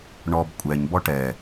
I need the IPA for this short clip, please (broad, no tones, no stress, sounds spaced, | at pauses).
ɳ ɔ b kʷʼ ɛ ɲ b ɔ ʈ ɛ